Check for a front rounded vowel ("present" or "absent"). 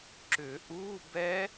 present